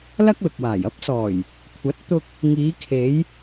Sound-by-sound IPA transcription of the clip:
lɐ˥k̚lʊ˨k̚waː˨˩j ɐ˥p̚sɔː˨˩j | kʷʰɐ˨˥t̚ t̪ʊ˧k̚ | ŋiː˨˧kʰe˨˧j

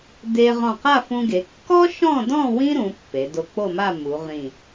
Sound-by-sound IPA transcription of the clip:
de˧ ʁɔ̃˧˩qa˥˧fũ˧ɡe˩˧ kːɔ˥ʃɔ̃˥˧dɔ̃˥˧ wĩ˥ɾũ˩˧ pːe˩˧do˧k͡po˥˧ma˥˧ mu˩˧ʁĩ˧˩

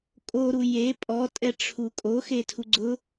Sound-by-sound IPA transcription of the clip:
kʼoɾu je pʼɔtʼɛʈ͡ʂʰu kʼoxetʰu ɡ͡ǀʊ

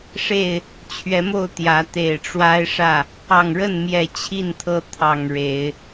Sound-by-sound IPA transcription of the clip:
ʂe˥˨ɪ̯ | t͡ɕʰɥɛ˨˦mo˥˨ʊ̯ t̪jä˨˦ t̪e˨˩ɪ̯ʈ͡ʂwa˦ɪ̯ʂä˥˨ | ɑ˨˩ŋɻə˥˨nmjɛ˨˩ t͡ɕʰi˥˨nt̪ʰɤ˦ t̪ʰɑ˨˩ŋ ɻe˨˦ɪ̯

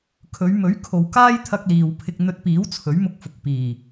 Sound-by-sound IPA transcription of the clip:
kʰɵ˨˧ɥmɵ˨˥ɥ kʰo˨wkaː˥jt̪ʰɐ˧k̚ liː˨wpʰɪ˧k̚ n̪ɵ˧t̚piː˨˥w t͡sʰɵ˨˥ɥmʊ˧k̚fʊ˨k̚piː˨˩

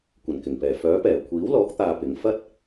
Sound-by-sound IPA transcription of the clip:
kʷɐ˨˩nkɪ˨˩ŋpɛː˨˩ fœː˨˥pɛː˨˩ kʷʰiː˨˥wlɔː˨˥k̚t̪aː˨ pɪ˨˥ŋ fɐ˥t̚

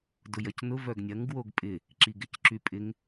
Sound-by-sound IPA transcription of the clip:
dʊjɐcnʊ vœɡnʲɐŋ ɡwoɡpʼɪ | ǁiɡɪcǁypʼɪŋ

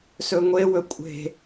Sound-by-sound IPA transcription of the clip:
sɵŋʷewɵ kʷʼe̤

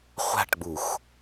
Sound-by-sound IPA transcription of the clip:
χʷa̤ʈɡ͡bux

